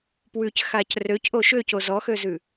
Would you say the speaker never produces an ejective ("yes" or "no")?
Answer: yes